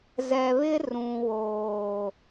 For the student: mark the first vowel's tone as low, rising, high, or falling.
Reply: low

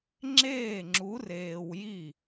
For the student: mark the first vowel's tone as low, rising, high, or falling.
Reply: falling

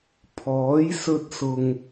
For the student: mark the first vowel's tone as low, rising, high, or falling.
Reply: rising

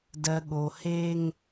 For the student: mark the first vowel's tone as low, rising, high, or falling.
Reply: low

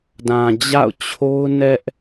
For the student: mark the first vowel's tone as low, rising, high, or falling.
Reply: low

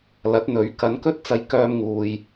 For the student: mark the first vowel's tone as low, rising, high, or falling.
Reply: rising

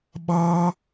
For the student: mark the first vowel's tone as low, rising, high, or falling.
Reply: high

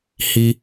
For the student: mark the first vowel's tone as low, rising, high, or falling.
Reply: high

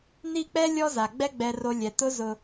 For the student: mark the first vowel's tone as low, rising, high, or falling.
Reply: falling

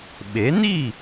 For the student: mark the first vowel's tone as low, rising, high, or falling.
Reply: rising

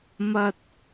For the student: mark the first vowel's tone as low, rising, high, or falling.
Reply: high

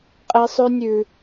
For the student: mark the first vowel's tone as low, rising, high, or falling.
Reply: high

